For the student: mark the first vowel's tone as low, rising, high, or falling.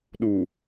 low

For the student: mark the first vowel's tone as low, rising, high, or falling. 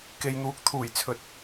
low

